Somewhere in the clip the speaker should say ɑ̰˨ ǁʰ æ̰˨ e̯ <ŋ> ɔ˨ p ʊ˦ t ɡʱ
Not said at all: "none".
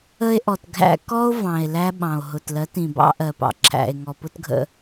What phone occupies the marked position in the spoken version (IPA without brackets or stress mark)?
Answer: ŋ